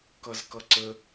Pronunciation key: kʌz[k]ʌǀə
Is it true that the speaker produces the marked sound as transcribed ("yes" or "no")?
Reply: yes